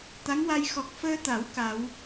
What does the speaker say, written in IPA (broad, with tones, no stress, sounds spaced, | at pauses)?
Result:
t̪ a˧˥ ŋ w a˧ j x ɔ˨˩ k̚ f əː˧ t̪ a˨˩˦ w k a˨˩˦ w